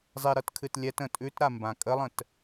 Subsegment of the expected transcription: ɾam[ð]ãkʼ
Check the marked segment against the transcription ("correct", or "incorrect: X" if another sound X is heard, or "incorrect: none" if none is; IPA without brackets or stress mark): incorrect: b